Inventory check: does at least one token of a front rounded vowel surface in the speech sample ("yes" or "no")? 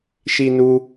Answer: no